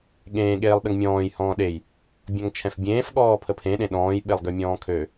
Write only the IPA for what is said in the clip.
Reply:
ɠ ẽː ɠ eː lˠ ɗ ə ŋ mʲ ɔ̃ː j h ɔ̃ː ɗ e j | bʲ ɔ̃ ŋ t͡ʃʰ ɛ̃ f bʲ ẽː f ɠ ɔː pʰ ə pʰ ẽ ɗ ẽ ɗ ɔ̃ː j ɓ e lˠ ɡ ø mʲ ɔ̃ː kʰ ø

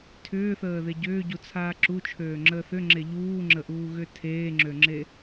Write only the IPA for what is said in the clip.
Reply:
tʰ ʏː θ əː ð e ɟ ʏː ɟ u t͡sʰ aː ǁ u t͡ʃʰ øː ŋ͡ǁ əː θ ʏ ŋ͡ǁ e ʎ uː ŋ͡ǁ ə ʔ uː ɣ ʏ tʰ eː ŋ͡ǁ ø ŋ͡ǁ e

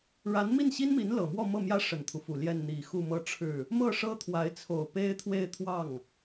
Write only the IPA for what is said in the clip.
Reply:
ɻ a˧˥ n m i˥˩ n ɕ i˥ n m i˧˥ n l ɤ˨˩ m w ɔ˥˧ m ɤ˥˩ m j ä˥ ʂ ə˨˩ n t̪ʰ u˦ f u˨˩ l j ɛ˥˩ n n̪ i˨˩ x u˥˧ m ɤ˥˧ ʈ͡ʂʰ ɻ̩˥˩ | m ɤ˥˩ ʂ ɤ˥ t̪ʰ w a˧˥ ɪ̯ t͡sʰ o˨˩ ʊ̯ p e˥ ɪ̯ t̪ʰ w e˥˧ ɪ̯ t̪ʰ w ɑ˥˩ ŋ

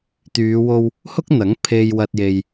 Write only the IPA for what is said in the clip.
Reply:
t̪ yː˨˧ w o˧ w | h ʊ˥ k̚ n̪ ɐ˨˥ ŋ pʰ e˧ j w ɐ˧ t̚ j e˧ j

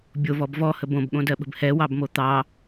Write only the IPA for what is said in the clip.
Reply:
bʲ o v ɔ b v ɔ h ə b õ b ɠ õ d ɜ ɓ ə̤ b h ɛ w ɑ b m o t̪ ɑ

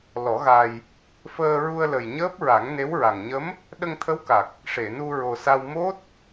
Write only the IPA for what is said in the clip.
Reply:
l ɔ˨˩˦ ɣ a˧ j | f əː˧ ɹ u˧ ə̯ l ə˨˩ j ɲ əː˦˥ p̚ ɹ a˨˩˦ ŋ n e˧˥ w ɹ a˨˩ ŋ ɲ ə˧˥ m | ɗ ə˧ ŋ t̪ʰ ə˧˥ w k a˨˩ k̚ | ʂ e˨˩˨ n u˧ ɹ o˨˩ s a˧ w m o˦˥ t̚

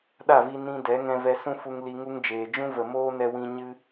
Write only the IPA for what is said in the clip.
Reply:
ɗ a˦˨ v i˧ n ĩ˧ d ɛ˨˦ ŋ ɛ̃˧ v ɛ˧ s ũ˦ f u˧ ŋ l i˧ ŋ u˦ ŋ d͡ʒ eː˨ d͡ʒ ũ˦ v ə˨ m oː˦ n ɛ˧ w ĩ˧ ɲ ɨ˦

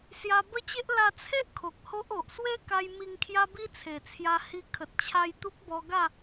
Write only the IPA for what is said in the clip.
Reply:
s j a˧ b ə˦ t͡ɕ e˦ ʔ l a˧ t͡sʰ e˦ ʔ kʰ o˨ k̚ h o˦ ʔ o˨ ʔ s w e˦ k a˧ j m i˧ ŋ kʰ j a˦ b i˦ t͡sʰ e˨˩ t͡sʰ j a˧ h i˧ kʰ ə˨ t̚ t͡ɕʰ a˧ j t̪ u˦ k̚ b ɔ˧ ɡ a˥˧

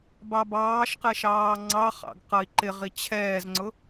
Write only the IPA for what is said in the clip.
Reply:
b ɑ b ɑː ʃ q ɛ ʃ ɑː ŋ͡ǀ ɑ χ ɑ̰ ɡ q ʌ i̯ ǃ ɪ ʁ i t͡ɕʰ ɛː z ŋ͡ǀ ʊ

